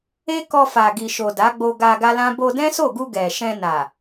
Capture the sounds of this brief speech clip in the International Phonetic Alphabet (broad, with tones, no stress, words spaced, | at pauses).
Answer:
e˦ kɔ˧fa˨ɡi˨ ʃo˨da˨˦ɡ͡bo˧ ɡa˧ ɡa˦lã˦ bo˧dɛ̃˦so˦˨ɡu˧ ɡɛ˨ʃɛ̃˧ na˨